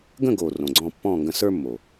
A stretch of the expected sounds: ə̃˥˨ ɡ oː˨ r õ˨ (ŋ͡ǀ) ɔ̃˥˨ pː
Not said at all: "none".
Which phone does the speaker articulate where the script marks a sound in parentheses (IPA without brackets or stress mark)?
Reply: ɡ͡ǀ